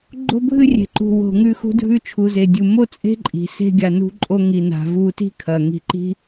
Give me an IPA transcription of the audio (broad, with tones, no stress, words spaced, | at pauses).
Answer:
ɡ͡ǃo̤˧bʱɨ˧rʲe̤˩ǃṳ˩ wo̤˩ŋʉ˧ xṳ˧dʱʉ˧ t͡ʃʰu˩ze˩dʲu˩ mo˥t͡sʼe̤˥ǃʼi̤˩ se̤˧ɡʲa˩nṳ˧ǃʼo˧ ŋi˩na̤˩ vu˧ti̤˥kʰɐ˩ ŋi̤˧ǃi̤˥